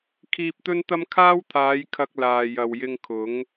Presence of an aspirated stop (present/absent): present